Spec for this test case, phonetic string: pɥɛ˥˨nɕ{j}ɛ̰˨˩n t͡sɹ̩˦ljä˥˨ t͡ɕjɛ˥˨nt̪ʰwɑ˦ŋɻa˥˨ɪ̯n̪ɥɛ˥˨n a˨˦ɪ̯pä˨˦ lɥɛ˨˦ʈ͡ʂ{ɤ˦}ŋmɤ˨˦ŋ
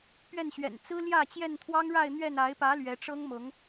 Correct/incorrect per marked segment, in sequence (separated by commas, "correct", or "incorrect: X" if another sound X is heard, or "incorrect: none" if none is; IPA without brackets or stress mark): incorrect: ɥ, correct